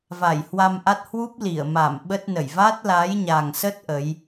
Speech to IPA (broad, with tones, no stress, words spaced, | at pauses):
va˧˩jhwa˧mʔa˦˥t̚ hwu˦˥p̚ li˧˩ə̯ma˧˩m ɓə˦˥t̚nə˧˩j va˦˥t̚la˨˦jɲa˨˩ŋsə˦˥t̚ ʔə˨˦j